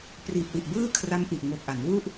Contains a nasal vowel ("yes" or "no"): no